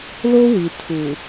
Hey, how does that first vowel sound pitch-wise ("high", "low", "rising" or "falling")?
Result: high